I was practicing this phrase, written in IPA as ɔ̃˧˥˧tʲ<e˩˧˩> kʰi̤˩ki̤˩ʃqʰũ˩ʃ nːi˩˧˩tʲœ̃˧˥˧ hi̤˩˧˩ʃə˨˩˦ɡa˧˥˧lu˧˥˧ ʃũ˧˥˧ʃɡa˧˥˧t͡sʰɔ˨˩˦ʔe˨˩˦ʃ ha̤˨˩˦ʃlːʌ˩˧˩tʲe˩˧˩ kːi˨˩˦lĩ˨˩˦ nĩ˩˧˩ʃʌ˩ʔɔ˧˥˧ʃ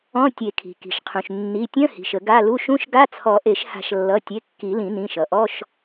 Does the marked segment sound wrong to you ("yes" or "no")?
yes